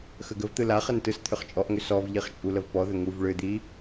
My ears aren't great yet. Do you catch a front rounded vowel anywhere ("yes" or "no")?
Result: yes